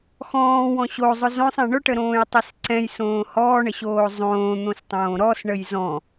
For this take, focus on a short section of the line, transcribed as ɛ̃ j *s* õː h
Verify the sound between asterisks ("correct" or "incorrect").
correct